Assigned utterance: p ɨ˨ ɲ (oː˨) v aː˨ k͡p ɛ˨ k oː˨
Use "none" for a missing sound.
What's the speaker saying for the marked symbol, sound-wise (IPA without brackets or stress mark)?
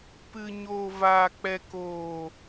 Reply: oː˨